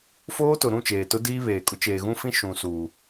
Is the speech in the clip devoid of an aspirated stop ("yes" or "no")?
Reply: yes